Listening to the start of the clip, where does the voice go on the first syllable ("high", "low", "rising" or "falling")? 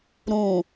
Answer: low